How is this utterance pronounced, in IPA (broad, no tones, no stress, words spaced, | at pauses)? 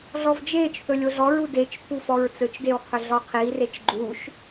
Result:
ɮɔvd͡ʒeːt͡ʃθɵ lʲoɮɔɹu det͡ʃpʰu fɔɹt͡sɵt͡ʃdew qʰɵɮɔqʰiːret͡ʃ ɡ͡ǃuʃ